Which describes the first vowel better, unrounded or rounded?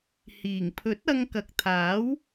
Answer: unrounded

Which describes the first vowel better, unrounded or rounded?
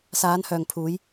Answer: unrounded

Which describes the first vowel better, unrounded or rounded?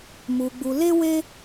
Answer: rounded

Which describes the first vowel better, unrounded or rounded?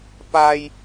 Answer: unrounded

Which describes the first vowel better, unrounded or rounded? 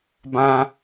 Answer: unrounded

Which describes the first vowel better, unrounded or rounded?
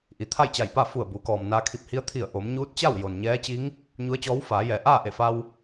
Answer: unrounded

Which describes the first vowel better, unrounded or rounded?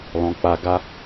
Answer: rounded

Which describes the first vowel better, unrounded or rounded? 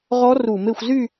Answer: rounded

